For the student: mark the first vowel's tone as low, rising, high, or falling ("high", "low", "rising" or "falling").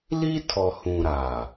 high